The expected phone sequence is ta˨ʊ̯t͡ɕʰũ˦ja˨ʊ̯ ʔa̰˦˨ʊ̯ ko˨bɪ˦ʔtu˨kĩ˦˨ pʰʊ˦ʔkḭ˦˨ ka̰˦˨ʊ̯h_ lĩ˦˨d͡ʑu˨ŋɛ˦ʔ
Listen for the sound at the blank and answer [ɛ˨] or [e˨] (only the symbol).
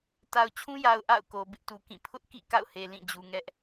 e˨